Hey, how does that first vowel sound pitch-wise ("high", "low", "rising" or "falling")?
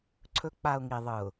rising